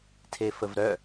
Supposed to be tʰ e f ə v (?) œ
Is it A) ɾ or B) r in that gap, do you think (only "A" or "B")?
A